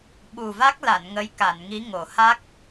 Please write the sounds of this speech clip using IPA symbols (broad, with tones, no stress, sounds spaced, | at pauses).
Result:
ɓ u˨˩ v a˦˥ k̚ l a˨˩˨ n ŋ ə˧˥ j k a˨˩˨ n ŋ i˧˥ ŋ o˨˩˨ h a˦˥ k̚